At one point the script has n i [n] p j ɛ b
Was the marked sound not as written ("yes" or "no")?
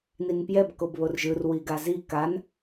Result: no